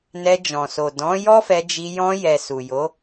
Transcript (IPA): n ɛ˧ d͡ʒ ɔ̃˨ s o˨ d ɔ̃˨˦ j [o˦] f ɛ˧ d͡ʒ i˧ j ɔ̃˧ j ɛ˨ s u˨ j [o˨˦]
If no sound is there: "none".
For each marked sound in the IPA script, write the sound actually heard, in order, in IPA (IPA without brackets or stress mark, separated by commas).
ɔ˦, o˨˦